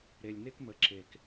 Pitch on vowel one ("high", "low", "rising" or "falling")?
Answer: low